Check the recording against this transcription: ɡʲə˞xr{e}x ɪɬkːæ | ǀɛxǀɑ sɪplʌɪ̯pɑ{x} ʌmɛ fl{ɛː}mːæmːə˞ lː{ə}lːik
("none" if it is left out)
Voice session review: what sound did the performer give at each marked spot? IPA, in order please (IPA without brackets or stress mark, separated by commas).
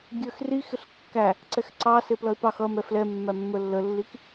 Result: i, x, ɛ, ə